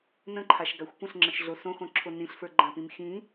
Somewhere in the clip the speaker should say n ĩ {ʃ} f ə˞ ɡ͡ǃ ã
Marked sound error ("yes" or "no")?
yes